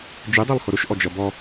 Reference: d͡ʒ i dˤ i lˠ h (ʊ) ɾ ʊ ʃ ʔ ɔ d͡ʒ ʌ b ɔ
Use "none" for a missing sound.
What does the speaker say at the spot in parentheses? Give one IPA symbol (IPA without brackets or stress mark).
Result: ʊ